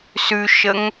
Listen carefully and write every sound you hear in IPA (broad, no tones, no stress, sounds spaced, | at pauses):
s ʉ ʃ ə ŋ